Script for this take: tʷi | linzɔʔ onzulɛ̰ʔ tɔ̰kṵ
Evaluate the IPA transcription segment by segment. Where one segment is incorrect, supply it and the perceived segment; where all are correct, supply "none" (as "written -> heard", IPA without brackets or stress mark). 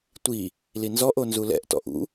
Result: k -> ʔ